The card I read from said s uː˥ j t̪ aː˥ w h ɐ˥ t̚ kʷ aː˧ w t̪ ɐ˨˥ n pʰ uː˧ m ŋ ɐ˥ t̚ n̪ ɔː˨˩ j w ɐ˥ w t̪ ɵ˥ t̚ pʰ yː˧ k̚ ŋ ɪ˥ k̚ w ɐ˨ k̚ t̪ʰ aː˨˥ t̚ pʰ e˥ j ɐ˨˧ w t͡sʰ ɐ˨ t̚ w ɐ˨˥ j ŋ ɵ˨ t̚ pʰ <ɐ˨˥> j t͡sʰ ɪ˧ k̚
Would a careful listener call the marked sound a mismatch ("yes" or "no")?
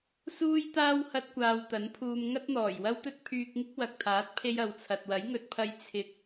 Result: yes